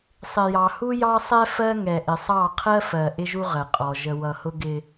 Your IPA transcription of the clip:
sˤ ɪ˨ j ɑ˨ h u˦ j ɑ˦ sˤ ɛ˦ f ɜ˦ ŋ ɛ˨ ʔ ɪ˨ sˤ ɑ˦˨ qʰ ɜ˦ f ɜ˨ ʔ ɪ˦ ʒ u˦ ʁ ə˨ qʼ ɔ˨ ʒ ə˨ w ʌ˨ h ʊ˦ ɡ ɪ˦

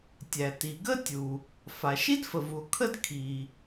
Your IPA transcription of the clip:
tʲ æ˩ t i˩ ɡ ə˥ tʲ u˩ | f a˩ ʃ i˥ d f ə˩ v u˩ o̯ kʰ ə˥ d kʰ i˩

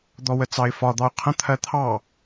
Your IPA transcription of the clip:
d̪ ɔ w ə t͡s ɑ ɪ̯ f ɒ d̪ ɑ ʊ̯ qʰ ə̃ t̪ʰ ɜ t̪ʰ ɑ

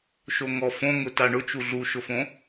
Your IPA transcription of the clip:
ʃ o ŋ ɔ f õ ŋ ʊ t a ɳ ʊ t͡ʃ u ɮ u ʃ ʊ f õ

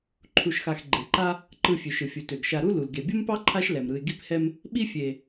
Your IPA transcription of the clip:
ǃʰ u˨ ʃ x a˨ x ɡ͡ǃ e˩ ǃ a˥ | ǃ ɯ˨ fʲ ø˩ ʃ ɯ˩ fʲ u˩ t ø˩ ɡ ʃ a˨ ɾ u˥ l u˩ l ɡ e˩ bʲ u˥ m p ɑ˥ ǃʰ a˦ ʃ l ɛ˩ m ɾ ɯ˨ ɪ̯ ɡ i˥ p h ɛ˥ m | ɓ i˦ fʲ e˨

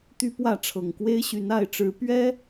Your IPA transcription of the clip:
t̪ y˦ p w ä˥˨ ʈ͡ʂʰ ɤ˨˩ ŋ k w e˦ ɪ̯ ɕ y˨˦ n a˥˨ ɪ̯ ʈ͡ʂ ɻ̩˨˦ p ɥ ɛ˦

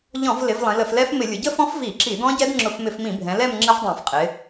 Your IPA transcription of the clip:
ʎ ɔ̃˧˩˧ v l ɪ˩˧ v lˠ ĩ˩˧ l ə˧˩˧ f l ɛ˦˥ f m ɪ˧˩˧ lʲ ʊ˩˧ ɟ ə˥˧ f ɔ̃˦˥ f v i˧˩˧ ǁ i˧˩˧ d ɔ̃˦˥ ɟ ɛ˦˥ d ŋ͡ǁ ʊ˧˩˧ f m ɪ˧˩˧ f m ĩ˧˩˧ bʱ ɛ̃˩˧ l ɛ˥˧ m ŋ͡ǁ ə˦˥ v dˤ ɛ̃˧˩˧ f qʼ ɪ˩˧

